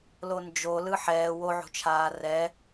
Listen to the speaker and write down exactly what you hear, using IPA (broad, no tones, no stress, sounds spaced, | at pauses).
l o n d͡ʒ o l ɯ ħ ɛː w o ʕ o̤ t͡ʃʰ aː r ɛ